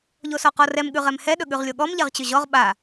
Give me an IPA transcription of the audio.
ʎ o s ɔ q ɔ r ɛ m ɠ ʉ ʁ ɛ m h ɛ ɗ ɵ ɠ ʉ ʁ lʲ o ɠ ɔ m ʎ ɛ ʁ t͡ɕ ɵ ʑ ɔ ʁ ɓ a

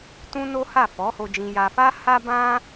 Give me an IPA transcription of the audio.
t ũ˦ n o˦ h a˦˨ f ɔ˨˦ h o˧ d͡ʒ ĩ˧ j a˧ f a˦ h a˦ b ã˦

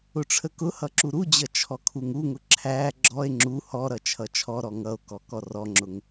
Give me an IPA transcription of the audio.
ʊ ʈ͡ʂʰ ə k ʊ h ʌ ǁ u ɾ u d͡ʑ ʌ t͡ʃʰ ɔ kʰ u ŋ u ŋ ʊ ǁʰ æ ɡ͡ǁ ɔ e̯ ŋ͡ǁ u h ɔ ɾ ʌ t͡ʃʰ ʌ t͡ʃʰ ɔ ɾ ɔ ŋ ʌ o̯ k ɔ k ɔ r ɔ ŋ͡ǁ ʊ ŋ

